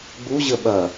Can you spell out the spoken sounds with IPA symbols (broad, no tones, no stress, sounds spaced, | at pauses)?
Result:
ɡ͡b u ʑ ə ɓ ɐ